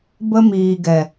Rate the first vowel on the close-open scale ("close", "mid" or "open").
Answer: mid